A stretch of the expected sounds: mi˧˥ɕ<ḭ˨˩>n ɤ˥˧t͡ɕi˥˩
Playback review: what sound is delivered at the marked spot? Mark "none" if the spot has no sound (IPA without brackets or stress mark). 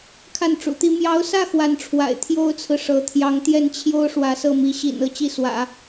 ḭ˨˩